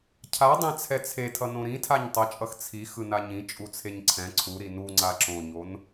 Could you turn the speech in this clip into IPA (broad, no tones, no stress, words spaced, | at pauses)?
cʰadˤɛ̃ t͡sʰɛt͡sʰetʰʌ nõɾĩtʰaɲ tˤʌt͡ʃʼʌx t͡sʰi xɯnaɲĩ t͡ʃʼut͡sʰeɲǀʰɛ̃ ǀʰuɾi nu ŋ͡ǀaǁõɲon